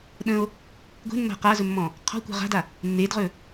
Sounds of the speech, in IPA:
ɗə̃o̯ | ɡʷe̤nːa̤ qazɵmːɔ̃ | qʰɔ̤kʷa̤ ʁa̤da | nːedʁɵ

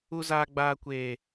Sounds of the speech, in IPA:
u˦zaː˦ɡ͡baː˦kʷeː˦

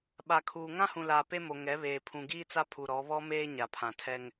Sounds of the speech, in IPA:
ɓa˨kʰuː˨ ŋã˦hũ˨laː˨ pe˦mo˨ ŋɛ˨˦βeː˨ pʰũ˨ɡiː˦t͡sa˦ pʰu˨ ɾɔ˨˦ βɔ˦ meː˦ɲa˨pʰã˨ tʰɛ˦ŋ

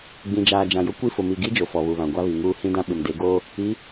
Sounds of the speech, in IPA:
ɡ͡bĩ˨d͡ʒaː˨ d͡ʒã˨jʊ˦ kʷi˦fʊ˨ mi˨ɡi˦ d͡ʒo˨fɔ˨βu˨βã˨ ɡʷa˦βi˨ŋuː˦ hĩ˦dã˦ ɓɪ˨mde˨˦ ɡoː˦ | i˨˦

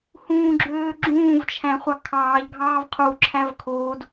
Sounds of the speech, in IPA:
hũːɡ͡ǁøːɡ͡ǁũːv t͡ʃʰæ̃χʷɑkʰɑːʎ ɡʱɑːvqʰu ǁʰævkʰoːd

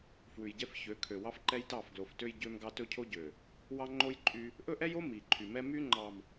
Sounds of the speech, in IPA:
fwʉ˨jɟɛ˦f çø˨˦kʰø˨wɑ˦fǃɛ˦j tɑ˦˨fɡlo˨ftø˦j ɟø˦mɡɑ˦ tɵ˦cʰo˦ɟø˨ | wɑ˦ŋ͡ǃo˦j ǃʼy˦ | ʔɵ˦ʔɛ˦jo˦ mi˨ǃʰy˨mɛ˦ my˦ŋ͡ǃɑ˨m

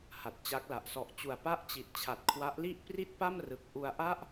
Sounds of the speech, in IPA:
ha˨˩t̚t͡ɕa˦˥k̚la˨˩ʔ sɔ˨˩ʔt͡ɕu˨˩a̯ pa˥˩ʔt͡ɕi˨˩t̚ t͡ɕʰa˨˩t̚kʰwa˦˥ʔli˥˩ʔ pri˥˩t̚pa˥˩mrɯ˨˩k̚ ʔu˧a̯ʔa˥˩ʔ

